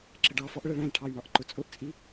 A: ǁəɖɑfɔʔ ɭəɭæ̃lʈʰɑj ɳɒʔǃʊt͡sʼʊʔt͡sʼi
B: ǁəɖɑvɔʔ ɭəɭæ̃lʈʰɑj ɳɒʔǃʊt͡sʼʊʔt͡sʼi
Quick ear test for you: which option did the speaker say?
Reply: A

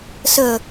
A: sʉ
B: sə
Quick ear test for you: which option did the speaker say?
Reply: B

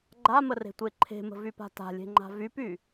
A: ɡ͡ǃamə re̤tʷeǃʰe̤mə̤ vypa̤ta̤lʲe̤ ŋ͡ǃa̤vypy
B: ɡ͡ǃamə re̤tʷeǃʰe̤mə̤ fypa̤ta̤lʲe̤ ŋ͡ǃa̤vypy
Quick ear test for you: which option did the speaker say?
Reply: A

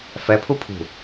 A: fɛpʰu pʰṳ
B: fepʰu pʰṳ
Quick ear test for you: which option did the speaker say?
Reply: A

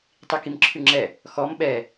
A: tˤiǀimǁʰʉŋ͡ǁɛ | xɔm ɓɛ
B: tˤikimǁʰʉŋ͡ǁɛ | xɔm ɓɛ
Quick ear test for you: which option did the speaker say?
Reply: B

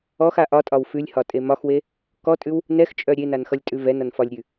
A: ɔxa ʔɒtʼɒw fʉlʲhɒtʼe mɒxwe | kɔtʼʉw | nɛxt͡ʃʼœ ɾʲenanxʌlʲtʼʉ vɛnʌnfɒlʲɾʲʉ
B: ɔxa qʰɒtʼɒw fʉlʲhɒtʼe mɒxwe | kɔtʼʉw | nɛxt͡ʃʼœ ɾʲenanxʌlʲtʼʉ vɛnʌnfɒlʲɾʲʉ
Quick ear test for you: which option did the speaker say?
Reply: A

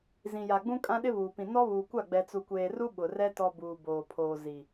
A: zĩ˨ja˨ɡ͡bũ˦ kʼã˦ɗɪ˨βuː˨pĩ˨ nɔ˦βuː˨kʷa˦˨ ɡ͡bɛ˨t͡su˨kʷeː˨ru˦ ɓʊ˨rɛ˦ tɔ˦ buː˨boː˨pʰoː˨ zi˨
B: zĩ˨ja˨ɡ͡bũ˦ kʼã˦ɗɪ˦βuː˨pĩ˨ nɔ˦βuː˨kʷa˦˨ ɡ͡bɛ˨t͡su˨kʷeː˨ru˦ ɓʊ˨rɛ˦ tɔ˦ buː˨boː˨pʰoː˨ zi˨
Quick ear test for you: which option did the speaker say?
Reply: B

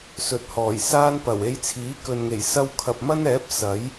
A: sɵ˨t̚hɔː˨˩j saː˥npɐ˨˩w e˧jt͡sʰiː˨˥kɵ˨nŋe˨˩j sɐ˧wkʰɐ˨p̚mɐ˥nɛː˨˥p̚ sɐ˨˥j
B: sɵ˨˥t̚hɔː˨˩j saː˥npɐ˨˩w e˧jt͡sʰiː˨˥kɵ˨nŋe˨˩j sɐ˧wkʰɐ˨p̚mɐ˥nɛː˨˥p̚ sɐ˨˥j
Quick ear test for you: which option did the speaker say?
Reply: A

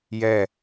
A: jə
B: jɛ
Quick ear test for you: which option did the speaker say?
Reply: B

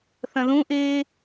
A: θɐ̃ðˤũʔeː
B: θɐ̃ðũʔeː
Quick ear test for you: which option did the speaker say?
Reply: B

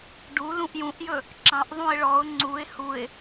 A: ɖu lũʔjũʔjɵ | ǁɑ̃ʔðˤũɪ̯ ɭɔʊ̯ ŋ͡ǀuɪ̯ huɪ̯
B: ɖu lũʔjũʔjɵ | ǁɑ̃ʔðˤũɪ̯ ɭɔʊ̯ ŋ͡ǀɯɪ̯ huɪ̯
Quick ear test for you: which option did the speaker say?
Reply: A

